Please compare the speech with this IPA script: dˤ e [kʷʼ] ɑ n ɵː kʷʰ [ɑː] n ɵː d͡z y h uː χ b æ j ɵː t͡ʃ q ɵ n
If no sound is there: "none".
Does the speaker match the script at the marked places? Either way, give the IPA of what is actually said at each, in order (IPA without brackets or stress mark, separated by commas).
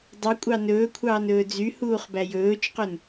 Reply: kʷʼ, ɑː